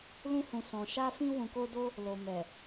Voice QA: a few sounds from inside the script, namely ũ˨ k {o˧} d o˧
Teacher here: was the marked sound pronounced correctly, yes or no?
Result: yes